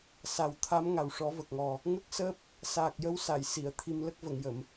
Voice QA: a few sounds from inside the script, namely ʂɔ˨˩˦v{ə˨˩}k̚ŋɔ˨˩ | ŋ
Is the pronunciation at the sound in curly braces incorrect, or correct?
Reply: correct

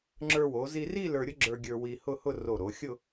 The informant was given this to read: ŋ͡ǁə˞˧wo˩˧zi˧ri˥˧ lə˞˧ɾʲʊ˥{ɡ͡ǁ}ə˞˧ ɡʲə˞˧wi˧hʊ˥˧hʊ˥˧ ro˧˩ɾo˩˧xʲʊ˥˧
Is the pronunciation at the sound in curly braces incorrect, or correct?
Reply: correct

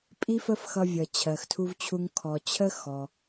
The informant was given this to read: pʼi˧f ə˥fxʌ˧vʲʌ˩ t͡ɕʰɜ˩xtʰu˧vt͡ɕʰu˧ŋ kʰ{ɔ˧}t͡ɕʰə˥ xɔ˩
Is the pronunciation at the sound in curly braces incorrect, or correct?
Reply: incorrect: ɔ˩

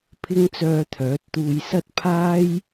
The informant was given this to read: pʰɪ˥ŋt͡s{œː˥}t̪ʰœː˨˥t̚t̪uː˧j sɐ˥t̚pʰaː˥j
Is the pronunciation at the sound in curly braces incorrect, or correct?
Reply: incorrect: œː˧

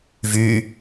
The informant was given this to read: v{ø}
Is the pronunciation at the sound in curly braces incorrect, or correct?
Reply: incorrect: y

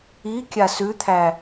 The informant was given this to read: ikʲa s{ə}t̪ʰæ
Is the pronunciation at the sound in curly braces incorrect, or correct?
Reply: incorrect: ʉ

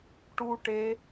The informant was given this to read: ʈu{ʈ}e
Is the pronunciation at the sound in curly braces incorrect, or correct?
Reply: correct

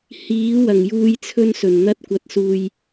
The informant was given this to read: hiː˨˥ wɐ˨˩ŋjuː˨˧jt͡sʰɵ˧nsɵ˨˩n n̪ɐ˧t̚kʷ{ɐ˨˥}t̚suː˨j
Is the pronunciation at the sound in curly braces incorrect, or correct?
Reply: correct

